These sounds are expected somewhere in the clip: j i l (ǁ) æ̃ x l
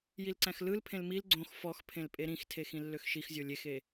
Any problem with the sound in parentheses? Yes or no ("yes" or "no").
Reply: yes